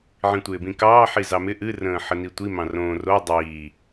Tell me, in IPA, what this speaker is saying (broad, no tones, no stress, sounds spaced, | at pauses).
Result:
ʕ ĩ tʷ ɪː b ĩ k ɑː ħ i z ɑ m ɪ ʔ ɨ r ə̃ː ħ ə n i tʷ i m ɑ̃ r õː r o dˤ iː